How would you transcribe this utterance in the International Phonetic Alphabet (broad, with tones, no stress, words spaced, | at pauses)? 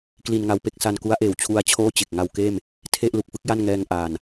kli˧nŋa˧wpe˥˩k̚ sa˧nku˦˥a̯ʔeː˨˩wt͡ɕʰu˧a̯ t͡ɕʰoː˥˩t͡ɕe˨˩k̚ ŋa˧wkeː˥˩m | tʰe˥˩ʔlu˨˩k̚fɯ˦˥k̚ ja˥˩nŋɛː˧ŋʔaː˨˩n